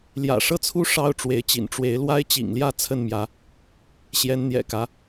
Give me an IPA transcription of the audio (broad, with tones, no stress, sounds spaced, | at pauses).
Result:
l j ä̰˨˩ ʂ ɤ˥˨ t͡sʰ u˦ ʂ ɑ˦ ʊ̯ ʈ͡ʂ w e˨˦ ɪ̯ t͡ɕ ḭ˨˩ n ʈ͡ʂ w e˨˦ ɪ̯ l w a˦ ɪ̯ t͡ɕ ḭ˨˩ ŋ l j ä˥˨ t͡sʰ ə˥˨ n m j ä˨˦ | ɕ j ɛ˨˦ n n̪ j ɛ̰˨˩ k ä˨˦